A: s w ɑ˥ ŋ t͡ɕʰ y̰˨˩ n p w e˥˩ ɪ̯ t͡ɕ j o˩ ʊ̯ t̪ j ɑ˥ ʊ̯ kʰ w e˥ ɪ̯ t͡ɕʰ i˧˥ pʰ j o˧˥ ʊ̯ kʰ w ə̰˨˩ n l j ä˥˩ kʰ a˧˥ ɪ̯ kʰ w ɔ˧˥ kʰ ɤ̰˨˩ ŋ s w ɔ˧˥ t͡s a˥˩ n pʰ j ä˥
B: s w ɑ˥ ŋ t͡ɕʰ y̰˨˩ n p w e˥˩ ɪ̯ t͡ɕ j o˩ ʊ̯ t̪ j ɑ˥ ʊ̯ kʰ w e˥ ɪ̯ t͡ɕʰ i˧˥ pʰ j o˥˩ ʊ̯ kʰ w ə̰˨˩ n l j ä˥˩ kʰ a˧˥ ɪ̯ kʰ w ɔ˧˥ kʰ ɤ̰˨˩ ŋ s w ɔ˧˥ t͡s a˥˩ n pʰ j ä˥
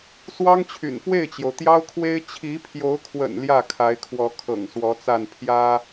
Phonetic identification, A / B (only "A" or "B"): A